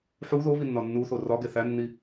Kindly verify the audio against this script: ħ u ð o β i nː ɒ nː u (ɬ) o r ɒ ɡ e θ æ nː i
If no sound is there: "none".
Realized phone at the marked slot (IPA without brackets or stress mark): θ